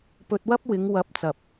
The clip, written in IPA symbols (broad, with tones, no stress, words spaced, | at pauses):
pɵ˧t̚wɐ˥p̚wɪ˨˧ŋ wɐ˧p̚t͡sɐ˨p̚